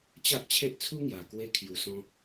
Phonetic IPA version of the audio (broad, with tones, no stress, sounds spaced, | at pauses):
t͡ɕ a˦ ʔ t͡ɕʰ e˦ ʔ t͡sʰ u˦ ŋ j a˨˩ k w e˧ kʰ j u˨˩ s ɔ̃˧